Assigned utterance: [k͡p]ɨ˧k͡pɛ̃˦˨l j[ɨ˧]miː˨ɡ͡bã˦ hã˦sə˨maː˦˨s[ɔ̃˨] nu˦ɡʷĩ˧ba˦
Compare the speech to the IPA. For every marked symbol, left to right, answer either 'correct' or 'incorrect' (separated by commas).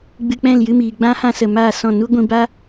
incorrect, correct, incorrect